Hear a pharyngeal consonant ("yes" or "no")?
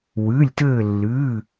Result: no